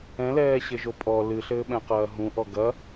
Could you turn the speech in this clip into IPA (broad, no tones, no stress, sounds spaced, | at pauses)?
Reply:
ɛ̃ l ɛː ɕ ɘ ʒ o pʼ ɔ l ɨ ɬ ɘː ɓ ɛ̃ q ɐː ɦ ũ ʔ ɔ ɡ ɐ